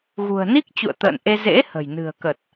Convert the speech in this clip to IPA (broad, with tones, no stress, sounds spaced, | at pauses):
ɣ ṳ˨˩ ə̯ n i˦˥ k̚ t͡ɕ ṵ˧˨ ə̯ t̪ ə̰ː˧˨ n ʔ e˧ z ḛ˧˥ h ə̤˨˩ j n ɨ̤˨˩ ə̯ k ə˨˩ t̚